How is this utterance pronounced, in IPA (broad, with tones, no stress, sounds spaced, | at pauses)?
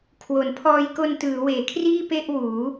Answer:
kʰ w o˩˦ n pʰ ɔː˧ j k o˧ n t ɯː˩˦ w eː˩˦ kʰ r iː˥˩ p e˥˩ ʔ w uː˩˦